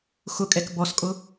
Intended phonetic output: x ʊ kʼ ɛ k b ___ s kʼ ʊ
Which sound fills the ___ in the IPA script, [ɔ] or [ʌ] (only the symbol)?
ɔ